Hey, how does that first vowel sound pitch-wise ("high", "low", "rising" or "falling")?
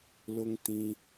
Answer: high